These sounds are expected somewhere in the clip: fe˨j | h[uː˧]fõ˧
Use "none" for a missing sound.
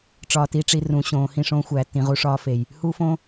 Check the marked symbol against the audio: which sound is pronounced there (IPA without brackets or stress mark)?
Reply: uː˧